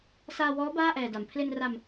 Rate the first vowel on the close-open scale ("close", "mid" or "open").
open